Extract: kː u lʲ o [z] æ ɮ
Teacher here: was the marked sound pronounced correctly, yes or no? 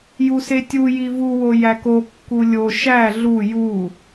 no